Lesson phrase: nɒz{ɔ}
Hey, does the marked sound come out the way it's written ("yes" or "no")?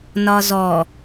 yes